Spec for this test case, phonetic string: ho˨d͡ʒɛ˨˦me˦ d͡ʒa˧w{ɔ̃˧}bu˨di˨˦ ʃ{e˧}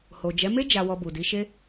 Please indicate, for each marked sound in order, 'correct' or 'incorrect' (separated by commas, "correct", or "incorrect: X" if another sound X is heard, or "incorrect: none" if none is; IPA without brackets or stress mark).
incorrect: ɔ˧, correct